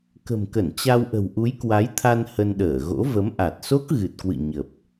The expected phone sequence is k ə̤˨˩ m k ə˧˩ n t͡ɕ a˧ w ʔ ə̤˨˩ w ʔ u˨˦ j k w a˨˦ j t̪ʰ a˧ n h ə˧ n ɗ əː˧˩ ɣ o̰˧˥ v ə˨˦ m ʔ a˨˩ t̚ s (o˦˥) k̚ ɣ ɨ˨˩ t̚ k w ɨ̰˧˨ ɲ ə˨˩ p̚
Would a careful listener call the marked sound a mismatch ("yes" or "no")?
no